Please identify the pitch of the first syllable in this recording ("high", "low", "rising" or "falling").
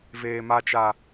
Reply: high